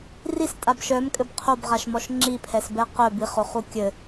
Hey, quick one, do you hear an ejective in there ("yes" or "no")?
yes